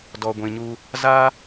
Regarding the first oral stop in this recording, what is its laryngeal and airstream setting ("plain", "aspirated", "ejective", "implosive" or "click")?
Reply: plain